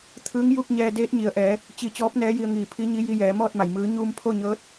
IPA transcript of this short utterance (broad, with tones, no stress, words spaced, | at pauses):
t̪ʰɯː˧˥ŋju˥˨k̚ ɲɛː˧deː˧˥t̚ɲi˩ə̯ʔɛː˩˧ | t͡ɕi˧˩ t͡ɕɔː˧˥p̚nɛː˧˥ji˧ə̯ŋiː˧˩ pʰi˧˥ɲi˧˥ ji˧jɛː˩˧mɔː˥˨t̚ma˩j mɯː˩˧ɲuː˧m pʰo˥˨ɲɤː˧˥t̚